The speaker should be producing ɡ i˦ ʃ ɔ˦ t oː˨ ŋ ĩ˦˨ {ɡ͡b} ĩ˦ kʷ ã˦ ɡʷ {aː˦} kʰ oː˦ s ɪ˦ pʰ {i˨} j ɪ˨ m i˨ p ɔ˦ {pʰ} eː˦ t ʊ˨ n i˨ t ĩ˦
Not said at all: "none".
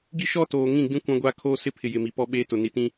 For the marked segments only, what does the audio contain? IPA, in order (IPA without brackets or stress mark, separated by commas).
ɡ͡b, aː˦, ɪ˨, ɓ